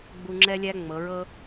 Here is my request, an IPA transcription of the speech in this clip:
ɡ͡b u˧ ŋ͡ǁ ɛ˦ lʲ æ˦ ŋ͡m ɤ˨˦ ɹ ɤ˦

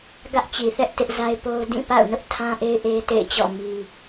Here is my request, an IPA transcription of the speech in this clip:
ɡ ä˦ ʔ t͡ɕ i˨ θ ɛ˦ ʔ t ɪ˦ ʔ z a˦ ɪ̯ p o˦ ʊ̯ d ĩ˦˨ p a̰˦˨ ʊ̯ n ʊ˦ ʔ tʰ ã˦ ʔ e˦ ɪ̯ ʔ e˦ t ḛ˦˨ ɪ̯ t͡ɕ ɔ̰˦˨ m i˦

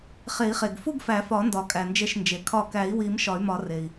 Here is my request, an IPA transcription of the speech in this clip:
χ e˨˩˦ i̯ χ e˩ ɡ f u˥˧ ɡ f æ˨˩˦ f ɒ˨˩˦ n d ɒ˩ kʼ æ˩ n d͡ʒ e˧˩ ʃ n d͡ʒ e˩ kʰ ɒ˧˩ k æ˨˩˦ i̯ w i˨˩˦ m ʃ ɒ˨˩˦ y̯ m ɒ˨˩˦ r e˩ i̯

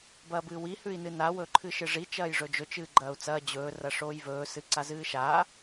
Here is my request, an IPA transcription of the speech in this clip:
b ɐː b ɨː w i h ʉ i̯ n ɨ n a w ɵ ǃʰ ɨ ʃ ɨ ʐ i t͡ʃ ɐː j ʐ ɵ d͡ʒ ɵ t͡ʃ ɨː ɡ͡ǃ ɐː u̯ t͡s ɐː d͡ʑ ɵː r ɐ ʂ oː j v ɵː s ɨ ǀ a z ɨː ʃ a

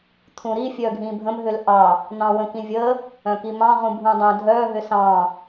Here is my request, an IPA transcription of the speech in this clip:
t̪ʰ ũ ɾ i fʲ œ ɡʱ ĩ bʱ ə̃ m ɦ ʏ l ʔ ɑ | n̪ ɑ̃ w ə̃ k ĩ vʲ ə | œ̃ k i m ɑ̃ ʁ ũ bʱ ũ dˤ œ̃ dʱ œ ɦ ʏ s ɑ̃

